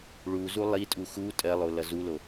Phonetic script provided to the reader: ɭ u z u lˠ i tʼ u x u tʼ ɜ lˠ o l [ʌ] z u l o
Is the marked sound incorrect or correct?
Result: correct